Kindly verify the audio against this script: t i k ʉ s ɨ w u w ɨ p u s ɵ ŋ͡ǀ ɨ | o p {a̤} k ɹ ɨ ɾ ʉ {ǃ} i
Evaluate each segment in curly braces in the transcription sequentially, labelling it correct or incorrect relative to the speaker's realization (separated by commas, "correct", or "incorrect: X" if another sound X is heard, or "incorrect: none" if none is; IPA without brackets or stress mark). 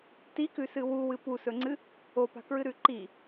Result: correct, correct